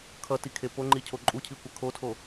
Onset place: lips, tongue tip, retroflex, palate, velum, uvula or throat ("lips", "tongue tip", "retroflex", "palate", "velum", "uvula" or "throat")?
velum